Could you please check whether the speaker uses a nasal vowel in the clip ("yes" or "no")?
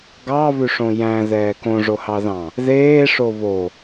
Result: yes